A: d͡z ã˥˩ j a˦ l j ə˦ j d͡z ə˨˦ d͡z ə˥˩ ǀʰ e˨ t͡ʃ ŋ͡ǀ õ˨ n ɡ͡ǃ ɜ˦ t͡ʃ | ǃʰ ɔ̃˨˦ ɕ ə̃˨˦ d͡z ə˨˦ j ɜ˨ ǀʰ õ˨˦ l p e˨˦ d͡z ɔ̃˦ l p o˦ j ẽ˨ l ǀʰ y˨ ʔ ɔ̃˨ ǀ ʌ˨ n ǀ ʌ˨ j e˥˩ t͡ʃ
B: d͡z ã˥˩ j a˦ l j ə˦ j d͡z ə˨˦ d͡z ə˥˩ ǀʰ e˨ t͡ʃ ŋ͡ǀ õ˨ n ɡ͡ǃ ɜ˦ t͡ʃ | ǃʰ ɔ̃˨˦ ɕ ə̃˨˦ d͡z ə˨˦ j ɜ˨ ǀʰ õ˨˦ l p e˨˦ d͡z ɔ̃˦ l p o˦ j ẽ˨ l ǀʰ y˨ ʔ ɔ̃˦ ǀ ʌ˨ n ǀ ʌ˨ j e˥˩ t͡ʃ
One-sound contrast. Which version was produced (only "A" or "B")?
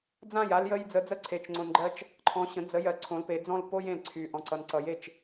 A